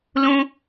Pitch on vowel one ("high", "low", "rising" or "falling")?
low